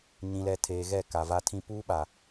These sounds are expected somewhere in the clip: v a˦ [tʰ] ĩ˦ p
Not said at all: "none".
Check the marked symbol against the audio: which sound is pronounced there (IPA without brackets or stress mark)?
tʰ